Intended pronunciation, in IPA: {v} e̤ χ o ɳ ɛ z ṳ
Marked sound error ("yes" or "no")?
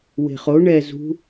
yes